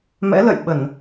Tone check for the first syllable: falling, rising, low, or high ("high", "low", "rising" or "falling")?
rising